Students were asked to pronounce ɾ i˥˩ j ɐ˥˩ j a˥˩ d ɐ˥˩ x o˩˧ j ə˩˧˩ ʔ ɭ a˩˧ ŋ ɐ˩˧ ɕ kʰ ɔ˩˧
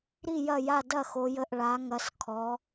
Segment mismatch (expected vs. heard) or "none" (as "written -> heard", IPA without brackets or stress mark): ɕ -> s